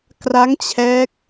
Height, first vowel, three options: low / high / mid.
low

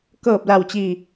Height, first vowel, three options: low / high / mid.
mid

